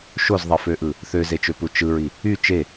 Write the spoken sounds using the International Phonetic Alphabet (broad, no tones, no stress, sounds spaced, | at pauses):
ʃ o z ðˤ i f ø ʔ ɯ | θ ø z e t͡ʃ ø p u t͡ʃ ɯ ɹ i | y t͡ʃ e